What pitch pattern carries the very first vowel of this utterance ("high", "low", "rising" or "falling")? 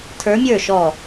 rising